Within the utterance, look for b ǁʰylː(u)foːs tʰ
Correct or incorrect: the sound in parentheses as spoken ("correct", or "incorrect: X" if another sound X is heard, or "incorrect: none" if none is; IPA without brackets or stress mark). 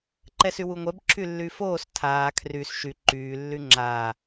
incorrect: y